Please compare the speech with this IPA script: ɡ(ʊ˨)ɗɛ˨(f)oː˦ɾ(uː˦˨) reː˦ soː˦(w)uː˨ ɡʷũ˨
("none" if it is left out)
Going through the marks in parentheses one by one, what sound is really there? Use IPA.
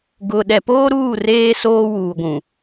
ʊ˨, p, uː˦˨, w

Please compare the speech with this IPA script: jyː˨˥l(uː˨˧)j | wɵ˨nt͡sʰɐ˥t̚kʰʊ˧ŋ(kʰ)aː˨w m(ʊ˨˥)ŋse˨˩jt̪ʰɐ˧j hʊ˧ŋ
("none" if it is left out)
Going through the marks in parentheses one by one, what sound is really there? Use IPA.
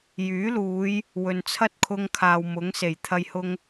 uː˨˧, kʰ, ʊ˨˥

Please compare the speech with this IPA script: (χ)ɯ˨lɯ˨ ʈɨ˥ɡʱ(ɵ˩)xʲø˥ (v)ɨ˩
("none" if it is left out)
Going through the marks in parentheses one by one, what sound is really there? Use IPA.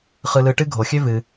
χ, o˩, v

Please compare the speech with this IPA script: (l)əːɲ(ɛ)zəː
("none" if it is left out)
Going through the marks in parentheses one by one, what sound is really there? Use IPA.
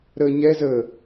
ɾ, ɛ

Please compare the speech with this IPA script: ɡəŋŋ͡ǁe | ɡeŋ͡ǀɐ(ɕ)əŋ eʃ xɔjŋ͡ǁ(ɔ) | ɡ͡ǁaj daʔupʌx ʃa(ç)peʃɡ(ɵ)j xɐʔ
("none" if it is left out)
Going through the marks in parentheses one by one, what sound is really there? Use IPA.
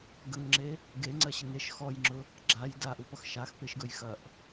ɕ, ʊ, x, ɵ

